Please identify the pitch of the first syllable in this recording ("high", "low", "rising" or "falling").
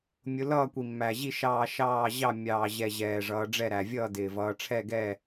rising